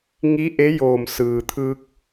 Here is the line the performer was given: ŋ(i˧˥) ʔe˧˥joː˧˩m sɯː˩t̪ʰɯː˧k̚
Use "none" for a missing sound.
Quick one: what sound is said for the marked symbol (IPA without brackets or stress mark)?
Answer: i˧˥